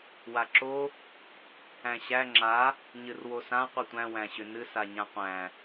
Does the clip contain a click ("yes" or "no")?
yes